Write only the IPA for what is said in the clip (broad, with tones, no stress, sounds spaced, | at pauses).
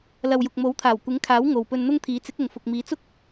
l ɐ˨ w j ʊ˨ k̚ m o˨˥ w t̪ʰ aː˨˩ w kʷ ɪ˨˥ ŋ kʰ aː˨˥ w ŋ o˨ w p ɵ˧ n n̪ ʊ˥ ŋ t̪ʰ iː˨˥ t͡s ɪ˨˥ k̚ ʊ˨ ŋ f ʊ˨ k̚ m iː˨˧ t͡s ʊ˥ k̚